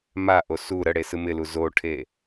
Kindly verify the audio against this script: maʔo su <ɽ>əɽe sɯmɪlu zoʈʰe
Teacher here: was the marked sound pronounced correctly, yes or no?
no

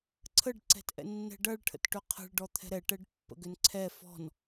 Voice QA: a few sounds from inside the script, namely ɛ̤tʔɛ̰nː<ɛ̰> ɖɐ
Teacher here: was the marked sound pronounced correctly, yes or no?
no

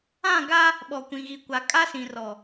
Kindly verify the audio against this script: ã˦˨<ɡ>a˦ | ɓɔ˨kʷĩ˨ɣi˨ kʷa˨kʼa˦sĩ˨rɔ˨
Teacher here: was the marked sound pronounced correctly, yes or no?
yes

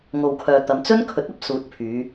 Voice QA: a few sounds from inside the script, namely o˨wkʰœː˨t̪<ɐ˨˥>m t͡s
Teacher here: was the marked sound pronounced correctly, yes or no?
no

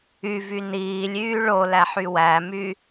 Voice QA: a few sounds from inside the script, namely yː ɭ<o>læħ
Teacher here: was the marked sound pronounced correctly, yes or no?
yes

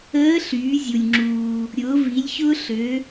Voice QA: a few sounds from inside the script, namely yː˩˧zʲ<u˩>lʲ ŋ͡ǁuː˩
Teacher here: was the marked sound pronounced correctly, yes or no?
yes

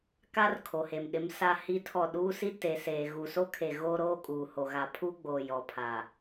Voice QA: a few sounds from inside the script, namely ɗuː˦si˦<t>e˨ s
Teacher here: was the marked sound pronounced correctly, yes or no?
yes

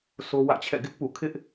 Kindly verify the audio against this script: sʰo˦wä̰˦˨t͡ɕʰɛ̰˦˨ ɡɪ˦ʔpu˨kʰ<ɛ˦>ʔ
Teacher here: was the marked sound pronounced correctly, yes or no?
no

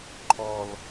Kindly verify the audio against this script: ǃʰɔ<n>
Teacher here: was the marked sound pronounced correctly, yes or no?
no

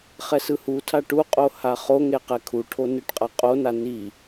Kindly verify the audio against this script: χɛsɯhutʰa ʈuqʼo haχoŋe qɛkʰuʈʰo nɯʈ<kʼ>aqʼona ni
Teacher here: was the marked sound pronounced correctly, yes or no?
no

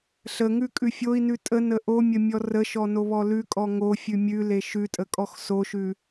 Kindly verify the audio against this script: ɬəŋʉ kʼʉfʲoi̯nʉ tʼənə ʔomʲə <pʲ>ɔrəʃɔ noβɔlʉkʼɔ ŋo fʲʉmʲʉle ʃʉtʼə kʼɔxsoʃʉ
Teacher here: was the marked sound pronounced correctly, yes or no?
no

